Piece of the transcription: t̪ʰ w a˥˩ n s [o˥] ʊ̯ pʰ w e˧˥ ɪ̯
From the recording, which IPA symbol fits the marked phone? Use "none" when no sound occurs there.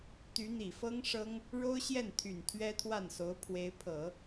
o˧˥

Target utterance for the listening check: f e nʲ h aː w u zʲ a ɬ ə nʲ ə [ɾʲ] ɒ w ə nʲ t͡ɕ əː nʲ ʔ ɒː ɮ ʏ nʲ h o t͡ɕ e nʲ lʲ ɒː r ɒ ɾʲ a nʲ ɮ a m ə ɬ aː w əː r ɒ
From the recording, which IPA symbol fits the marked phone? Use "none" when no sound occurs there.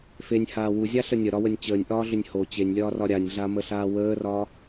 ɾ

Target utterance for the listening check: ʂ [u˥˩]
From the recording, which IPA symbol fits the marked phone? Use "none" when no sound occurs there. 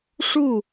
u˥˩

